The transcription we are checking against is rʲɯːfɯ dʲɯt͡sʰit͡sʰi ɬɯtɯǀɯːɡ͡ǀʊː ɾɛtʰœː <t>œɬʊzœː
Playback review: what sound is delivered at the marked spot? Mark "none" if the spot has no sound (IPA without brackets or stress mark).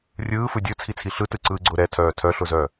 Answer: tʰ